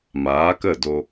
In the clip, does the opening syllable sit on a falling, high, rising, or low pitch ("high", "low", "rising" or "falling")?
rising